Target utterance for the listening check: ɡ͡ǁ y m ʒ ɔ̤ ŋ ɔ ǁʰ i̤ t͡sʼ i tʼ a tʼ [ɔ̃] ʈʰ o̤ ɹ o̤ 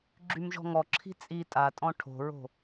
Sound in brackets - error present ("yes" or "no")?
no